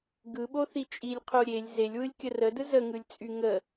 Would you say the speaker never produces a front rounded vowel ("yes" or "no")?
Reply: no